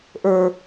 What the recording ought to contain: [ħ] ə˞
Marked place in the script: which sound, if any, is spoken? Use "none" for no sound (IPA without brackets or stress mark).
ʔ